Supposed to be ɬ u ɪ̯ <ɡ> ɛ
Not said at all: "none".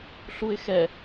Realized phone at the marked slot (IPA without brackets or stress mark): x